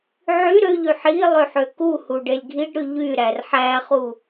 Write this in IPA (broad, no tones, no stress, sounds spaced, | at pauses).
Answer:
ʕ y ɾ ø ʎ y ħ i lˠ ø ħ ø k u h u ɖ e lʲ ɡʱ i ɖ ɾ y ʎ y ɾ æ r ħ æ χ u